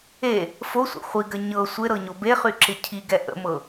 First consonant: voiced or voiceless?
voiceless